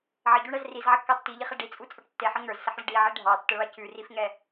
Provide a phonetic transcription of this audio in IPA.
ʕəɟuɳɛz rizʕɘkːɑ tːiʎiχɛ ɖit͡sʼut͡sʼə˞ʈ tːeħə ŋə˞zsəħɭɘ ɖiʕi ɖʱɑtːəɭɑ cʉrifŋɛ

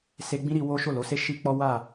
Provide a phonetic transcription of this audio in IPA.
se˧ɡ͡bĩ˦ɾi˧wo˦ ʃo˦˨lo˨˦se˦ ʃi˦ k͡pɔ˦wa˦˨

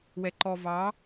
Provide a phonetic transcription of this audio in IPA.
wɛǃɔvɑ

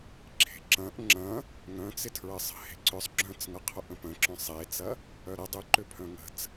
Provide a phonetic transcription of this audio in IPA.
ǁʰe̤ǁɐ̃ʔ ŋ͡ǁɐ̃ | ŋœ̃t͡sɪtʰɹəsˤə̤ he̤ǀʏsˤ ɡ͡ǁœ̃t͡sŋɐqʰʊ ʔə̃pə̃ǁœ̃ sˤet͡sɐ | œɾə dˤʏ ǃʏpʰœ̃ŋə̤t͡s

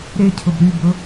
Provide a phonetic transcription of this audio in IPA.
ɾecʰʊb ɾybʊ

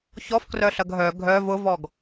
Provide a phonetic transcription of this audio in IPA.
çɔf krœɬɐɡɦœ ɡʱœ vʊvɔɡ

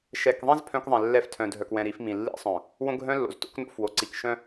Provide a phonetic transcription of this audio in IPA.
ʃɛ˨kðˤĩ˦z pʰœ̃˦kðˤɛ̃˨lːɛ˦f tʰœ̃˨dʱœ˨kwɛ̃˨ ɾi˨˦fmĩ˨lːḭ˦sˤœ̃˨ | wõ˦ɡʱœ̃˦lːo̰˨z to̰˦kno̰˦fwo˨ǀi˨k ʃœ̃˦

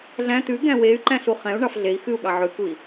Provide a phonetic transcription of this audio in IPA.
ɮæ̃ t̪ʉ ɡæ̃wey̯ǃæ̃ ɬuχɛ̃u̯ɳɑf ɮei̯ xʉu̯ɠɑ ʕʉkui̯

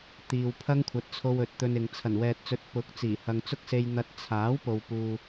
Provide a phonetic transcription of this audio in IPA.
t̪iː˨wpʰɐ˥ŋkʷʰɐ˨˥t̚t͡sʰo˧w ɵ˨t̚t̪ɵ˧nɪ˨ŋ t͡sʰɐ˨˩nwɛː˨t̚t͡sɵ˨˥t̚ pʊ˨˥k̚ t͡siː˨˩hɐ˨ŋt͡sʊ˥k̚se˧j n̪ɐ˧t̚ t͡sʰaː˨˥w po˨wpuː˨

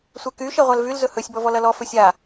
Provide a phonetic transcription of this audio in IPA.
sʷɛky ʃɛʁʷalvyl zɵhɵsʲ bɔvɔlɐlɔ fɵsʲa

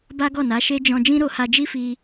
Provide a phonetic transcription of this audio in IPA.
ba˦ɡɔ˦˨na˨˦ʃe˦ d͡ʒɔ̃˧ d͡ʒĩ˦ɾo˧ha˧ d͡ʒi˦fi˧

